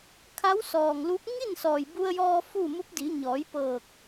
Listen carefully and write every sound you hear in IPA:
kʰ a˧˥ w s ɔː˩ ŋ l u˧˥ p̚ ŋ i˥˨ n s ɔː˩ j b u˧ ə̯ j ɔː˧ f u˥˨ m u˧˥ p̚ d i˩˧ ɲ ɔː˩˧ j p ɤː˧˩ k̚

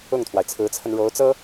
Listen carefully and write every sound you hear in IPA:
ʊ˥˩ ŋ t̪ʰ w a˩ ɪ̯ t͡sʰ ɹ̩˧˥ t͡sʰ ə˧ n ɻ o˧˥ ʊ̯ t͡s ɤ˥

